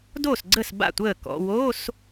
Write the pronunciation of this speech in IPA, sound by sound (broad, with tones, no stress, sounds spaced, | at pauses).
d oː˥˩ s ɡ͡ǀ ə˥˩ s b a̰˥˩ tʷ əː˥˩ k ɔ̰˧˥˧ w o˧˥˧ s